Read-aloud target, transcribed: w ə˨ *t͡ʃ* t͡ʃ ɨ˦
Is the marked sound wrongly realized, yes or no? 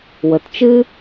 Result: yes